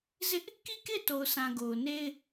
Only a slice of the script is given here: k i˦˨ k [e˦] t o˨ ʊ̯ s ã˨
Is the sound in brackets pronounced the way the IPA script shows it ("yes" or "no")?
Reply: no